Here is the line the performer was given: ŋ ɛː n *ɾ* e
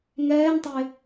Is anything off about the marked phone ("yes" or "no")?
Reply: yes